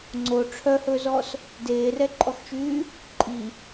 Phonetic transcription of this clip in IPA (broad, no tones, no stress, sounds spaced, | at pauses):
ŋ͡ǀ o ʈ͡ʂʰ œ h ɵ z ɔ s | d eː r ɛ ǃʼ ɔ x t͡ʃ yː | ǃʼ i